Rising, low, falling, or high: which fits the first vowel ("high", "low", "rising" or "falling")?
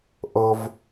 high